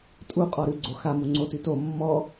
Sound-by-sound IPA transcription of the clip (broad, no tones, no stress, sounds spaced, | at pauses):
tʼ u qʼ ɔ ɾ ʉ ɡ͡ǀ o x a m u ŋ͡ǀ o t ʉ t o mː ɔ